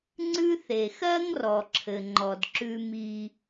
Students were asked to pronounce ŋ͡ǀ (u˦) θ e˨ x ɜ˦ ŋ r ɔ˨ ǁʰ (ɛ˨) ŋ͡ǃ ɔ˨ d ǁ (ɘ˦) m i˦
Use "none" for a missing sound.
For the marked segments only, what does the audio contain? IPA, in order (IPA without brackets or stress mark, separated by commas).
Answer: ʉ˦, ɘ˨, ʉ˦